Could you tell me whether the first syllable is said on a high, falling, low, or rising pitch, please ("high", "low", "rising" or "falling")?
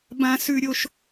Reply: high